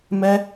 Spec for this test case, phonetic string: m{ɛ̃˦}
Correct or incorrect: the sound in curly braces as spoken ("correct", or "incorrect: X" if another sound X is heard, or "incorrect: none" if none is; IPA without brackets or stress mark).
incorrect: ɛ˦